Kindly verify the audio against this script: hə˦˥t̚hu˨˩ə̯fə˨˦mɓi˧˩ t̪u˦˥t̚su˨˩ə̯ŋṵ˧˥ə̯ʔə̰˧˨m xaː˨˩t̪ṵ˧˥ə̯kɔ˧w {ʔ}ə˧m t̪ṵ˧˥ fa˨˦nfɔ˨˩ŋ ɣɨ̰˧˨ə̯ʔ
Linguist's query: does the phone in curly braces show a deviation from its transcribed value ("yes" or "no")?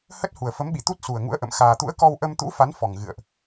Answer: no